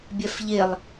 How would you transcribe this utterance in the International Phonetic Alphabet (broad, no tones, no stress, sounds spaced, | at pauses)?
bʲ ɛ f ʎ e lˠ